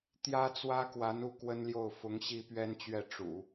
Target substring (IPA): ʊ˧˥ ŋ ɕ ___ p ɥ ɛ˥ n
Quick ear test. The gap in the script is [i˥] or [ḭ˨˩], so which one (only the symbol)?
i˥